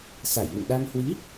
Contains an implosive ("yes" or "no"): yes